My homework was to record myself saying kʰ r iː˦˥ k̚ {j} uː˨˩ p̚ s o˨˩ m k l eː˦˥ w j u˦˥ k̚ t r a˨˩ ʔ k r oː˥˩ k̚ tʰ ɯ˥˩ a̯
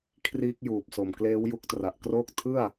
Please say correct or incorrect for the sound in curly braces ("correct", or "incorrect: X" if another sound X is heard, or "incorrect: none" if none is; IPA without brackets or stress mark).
correct